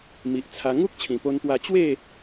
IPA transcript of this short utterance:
mi˨ʔt͡sʰa˧ ŋu˦k̚t͡ɕʰĩ˨˩po˧npwa˧ t͡ɕwe˥˧

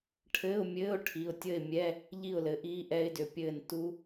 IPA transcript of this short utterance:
ʈʰɘː˧˥˧ʊ̯mʲɘː˧˥˧ʊ̯ ʈʰi˩˧˩ʊ̯tʲə˥˨ɪ̯mʲɛ˧˥˧ | ʎi˥˨ʊ̯lɘ˨˦ʔiː˦˥ ʔɛ˦˥ɪ̯dʏ˩˧˩pʲɘː˥˨n tu˦˥

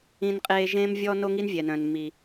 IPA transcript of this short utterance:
ĩ˥nqʼeː˥ ʒẽː˥mvʲɔ˥ no˥ŋi˥nvʲɛ˩nœ̃˩n mi˩

